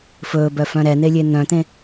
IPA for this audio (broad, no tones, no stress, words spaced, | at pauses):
fɵːbœfœ̃ ɾɛn̪elʲe n̪œ̃t̪ẽ